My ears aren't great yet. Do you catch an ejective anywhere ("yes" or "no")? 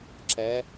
no